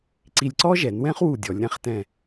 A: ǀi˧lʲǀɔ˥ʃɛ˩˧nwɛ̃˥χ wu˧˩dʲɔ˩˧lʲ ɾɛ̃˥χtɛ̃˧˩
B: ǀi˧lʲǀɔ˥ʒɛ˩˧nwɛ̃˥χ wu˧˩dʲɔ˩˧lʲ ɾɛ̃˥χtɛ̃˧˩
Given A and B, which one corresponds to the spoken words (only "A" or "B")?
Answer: B